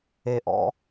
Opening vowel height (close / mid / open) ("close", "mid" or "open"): mid